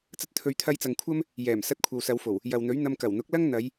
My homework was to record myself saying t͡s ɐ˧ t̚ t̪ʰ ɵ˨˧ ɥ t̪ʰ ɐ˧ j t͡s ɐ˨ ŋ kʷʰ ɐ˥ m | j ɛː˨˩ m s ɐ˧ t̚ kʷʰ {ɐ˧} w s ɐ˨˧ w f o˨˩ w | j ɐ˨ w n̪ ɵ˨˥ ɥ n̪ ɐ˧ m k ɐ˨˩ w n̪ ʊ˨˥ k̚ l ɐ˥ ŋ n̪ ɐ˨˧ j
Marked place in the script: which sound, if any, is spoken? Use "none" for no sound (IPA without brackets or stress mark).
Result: ɐ˨